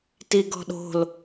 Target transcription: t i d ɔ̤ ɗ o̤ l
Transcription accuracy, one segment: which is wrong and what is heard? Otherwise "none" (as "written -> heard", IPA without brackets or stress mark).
d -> ɡ